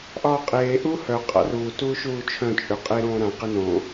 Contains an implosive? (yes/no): no